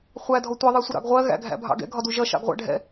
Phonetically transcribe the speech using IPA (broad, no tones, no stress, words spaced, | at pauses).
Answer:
χʷædʱɔ tʷɛðˤæsʷɪɾɑ̰ɡ ʁʷɜɣæ̰ɡʱæ̰bʱɑ̰ ɡɛ̰ɡʱɒdu ʒʌʃɑ̰ɡʁʷæ̰ ɖʱɛ̰